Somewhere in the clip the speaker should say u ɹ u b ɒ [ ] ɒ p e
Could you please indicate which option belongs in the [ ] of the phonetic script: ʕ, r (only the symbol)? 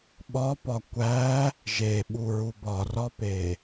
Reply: r